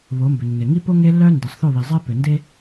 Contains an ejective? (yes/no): no